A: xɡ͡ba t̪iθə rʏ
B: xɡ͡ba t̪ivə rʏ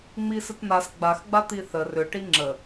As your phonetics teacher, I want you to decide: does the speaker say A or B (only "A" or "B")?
A